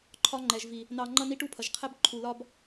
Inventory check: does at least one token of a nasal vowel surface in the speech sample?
no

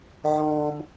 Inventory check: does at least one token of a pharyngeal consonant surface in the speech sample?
yes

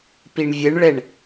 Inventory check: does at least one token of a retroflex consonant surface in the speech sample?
yes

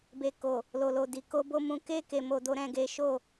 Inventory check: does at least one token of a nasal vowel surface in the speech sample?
yes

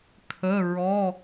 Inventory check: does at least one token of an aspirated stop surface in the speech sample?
yes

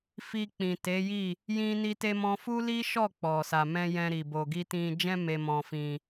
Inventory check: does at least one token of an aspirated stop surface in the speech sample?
no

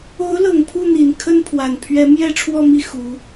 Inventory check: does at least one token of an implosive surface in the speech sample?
no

